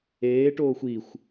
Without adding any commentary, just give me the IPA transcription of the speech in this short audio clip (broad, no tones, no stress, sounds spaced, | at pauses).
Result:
eː ʈ oː xʷ i xʷ